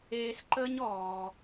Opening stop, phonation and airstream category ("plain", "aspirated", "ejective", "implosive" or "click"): click